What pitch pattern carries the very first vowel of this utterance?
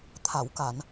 low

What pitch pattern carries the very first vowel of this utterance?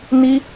high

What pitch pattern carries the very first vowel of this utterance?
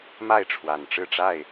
falling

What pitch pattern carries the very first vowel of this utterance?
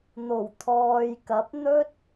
low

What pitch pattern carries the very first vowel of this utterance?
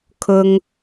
high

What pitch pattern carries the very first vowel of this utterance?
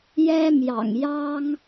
high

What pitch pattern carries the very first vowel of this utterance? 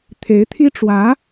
rising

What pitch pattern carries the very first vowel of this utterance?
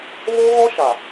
high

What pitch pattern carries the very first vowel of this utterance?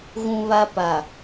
high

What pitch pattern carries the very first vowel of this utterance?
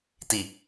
low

